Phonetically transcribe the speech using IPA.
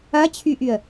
ɐ t͡ɕʰ y ʔ y ə̯

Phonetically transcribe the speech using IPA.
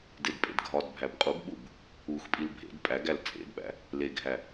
d e d pʼ ḛ d ɡʱ ɒ d bʱ æ b qʼ u ɡ ɓ u b | u x pʼ i l bʱ ḛ d pʼ æ ɡ æ l t͡sʼ ḛ d ɓ æ̰ | l e ɡʱ æ

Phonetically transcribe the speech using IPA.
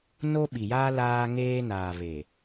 n o˦ ɓ i˨ j aː˦ l aː˦ ŋ eː˦ n aː˨ β e˨

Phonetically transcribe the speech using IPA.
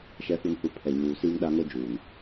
ʃ ɛ˨ f u˨ n h u˨ pʰ ɛ˨ ɲ uː˨ s iː˦ ŋ ɗ a˦ ŋ o˦ d͡ʒ uː˨ n

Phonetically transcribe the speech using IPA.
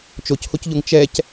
t͡ʃ o c h o c ʎ o ŋ t͡ʃ ɛ c

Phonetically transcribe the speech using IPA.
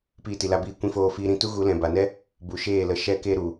p iː˧ t i˨ l a˧ b iː˧ kʷ ĩ˧ f oː˧ f iː˧ ɾ ĩ˧ t u˦ ɣ u˨˦ l ɛ̃˨ b a˨ n ɛ˦ | b u˨ ʃ eː˦˨ l ə˧ ʃ ɛ˦ k e˦ ɾ u˨

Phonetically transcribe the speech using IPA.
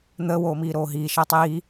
n̪ əː w oː m iː ɾ oː ɦ iː ʃ əː tˤ iː

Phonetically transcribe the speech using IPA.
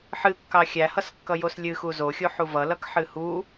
ħ ɨ kː ɑ xʲ æ h ʌ s kː ʌ j o s lʲ ɨ x u z o xʲ o ħ u v ʌ l ʌ k ħ ɨ h u

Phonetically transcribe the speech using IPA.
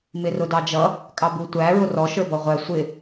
m ɪ r ʊ d ɑ d͡ʒ ʌ | kʼ ɑ b u tʷ æ ɹ ʊ r ɔ ʃ ə˞ b ɔ ʁʷ æ sʷ ɪ

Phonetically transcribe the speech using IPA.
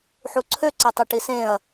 ħ u ǀʰ ø ǀ e tˤ e ʈ i s ẽ ɐ̯

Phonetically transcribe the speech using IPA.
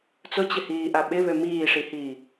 t͡s ʊ t͡ɕ ɪ h iː ʔ a ɓ ɪ β ø m iː ʂ i h iː

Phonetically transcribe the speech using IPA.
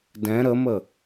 d ɛ̃ ɾ ə m ə

